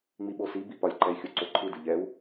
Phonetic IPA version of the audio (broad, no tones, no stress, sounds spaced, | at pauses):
ŋ͡m i ɓ o s i b i p ɒ lʲ ǃ ɛ i̯ xʲ o ǀ o ǃʰ ɯ d ɯ ʎ ɛ u̯